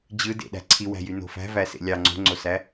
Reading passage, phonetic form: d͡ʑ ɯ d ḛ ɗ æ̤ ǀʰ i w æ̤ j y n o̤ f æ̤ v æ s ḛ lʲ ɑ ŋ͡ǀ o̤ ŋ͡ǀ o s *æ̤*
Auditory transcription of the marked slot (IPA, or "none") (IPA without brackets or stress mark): æ